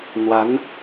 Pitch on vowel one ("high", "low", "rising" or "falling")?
rising